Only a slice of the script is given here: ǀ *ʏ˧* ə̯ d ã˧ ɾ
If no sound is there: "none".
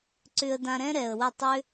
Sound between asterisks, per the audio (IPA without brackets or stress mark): ʏ˧